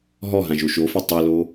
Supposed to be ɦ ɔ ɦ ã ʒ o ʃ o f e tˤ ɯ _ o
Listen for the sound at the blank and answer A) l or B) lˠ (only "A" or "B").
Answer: A